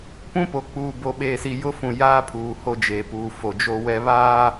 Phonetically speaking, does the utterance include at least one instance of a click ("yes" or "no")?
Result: no